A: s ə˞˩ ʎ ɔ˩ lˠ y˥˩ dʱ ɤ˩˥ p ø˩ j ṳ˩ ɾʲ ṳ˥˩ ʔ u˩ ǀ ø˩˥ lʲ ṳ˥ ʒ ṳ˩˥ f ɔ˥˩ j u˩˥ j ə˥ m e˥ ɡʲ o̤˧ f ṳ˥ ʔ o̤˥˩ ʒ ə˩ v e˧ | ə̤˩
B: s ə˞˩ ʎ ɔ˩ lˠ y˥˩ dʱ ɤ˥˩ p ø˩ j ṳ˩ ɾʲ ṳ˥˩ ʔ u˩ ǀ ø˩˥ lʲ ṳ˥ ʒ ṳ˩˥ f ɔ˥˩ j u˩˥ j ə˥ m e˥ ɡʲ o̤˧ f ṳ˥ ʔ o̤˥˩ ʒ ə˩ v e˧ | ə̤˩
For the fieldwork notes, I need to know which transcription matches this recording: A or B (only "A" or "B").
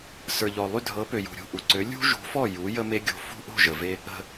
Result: A